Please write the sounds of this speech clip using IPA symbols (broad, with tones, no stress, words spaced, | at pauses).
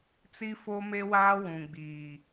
t͡si˦fo˦me˦waː˦ wũ˨ɡ͡biː˨